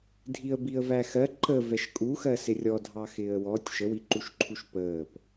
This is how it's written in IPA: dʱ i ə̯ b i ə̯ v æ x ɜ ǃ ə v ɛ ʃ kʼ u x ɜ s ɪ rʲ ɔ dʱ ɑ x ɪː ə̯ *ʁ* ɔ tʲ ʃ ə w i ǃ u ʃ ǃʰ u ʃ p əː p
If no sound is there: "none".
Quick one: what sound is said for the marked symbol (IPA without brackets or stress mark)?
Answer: w